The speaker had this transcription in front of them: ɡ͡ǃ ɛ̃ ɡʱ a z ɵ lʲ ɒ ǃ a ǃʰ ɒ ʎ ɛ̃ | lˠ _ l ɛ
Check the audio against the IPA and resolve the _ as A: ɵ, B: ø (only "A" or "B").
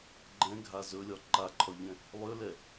B